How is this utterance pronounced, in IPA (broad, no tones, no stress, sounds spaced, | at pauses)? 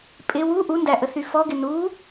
pʼ ɪ w u ʔ u n d æ ʔ ə θ y f ɔ ɡ ɪ n u